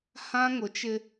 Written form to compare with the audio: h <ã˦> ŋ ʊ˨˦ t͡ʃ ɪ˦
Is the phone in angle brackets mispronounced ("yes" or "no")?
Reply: no